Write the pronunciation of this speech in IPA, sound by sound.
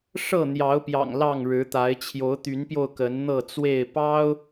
ʂɤ˥˨n̪jɑ˨˦ʊ̯pjɑ̰˨˩ŋ lɑ˥˨ŋɻɻ̩˨˦t̪a˨˦ɪ̯ t͡ɕʰjo˨˦ʊ̯t̪y˨˦npjo˧ʊ̯ kə˨˦nn̪ɤ˥˨t͡swe˥˨ɪ̯ pɑ˦ʊ̯

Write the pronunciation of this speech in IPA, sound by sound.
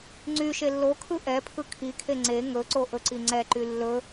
ŋ͡ǀy ʃelːokʰɯ ʔɛpʰɯ kʰikʰe ŋ͡ǀe ŋɵǀo ʔɵǀiŋ͡ǀɛǃy lːɵ

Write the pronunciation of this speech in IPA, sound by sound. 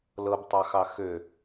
lɤbtˤɑxɑ xø

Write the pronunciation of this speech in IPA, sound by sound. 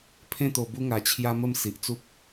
pʰẽ˥˧t̪o˧bu˦ ŋa˧ t͡ɕʰja˦mə˥˧m si˨ʔt͡su˦p̚

